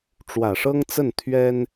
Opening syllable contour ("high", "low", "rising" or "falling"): low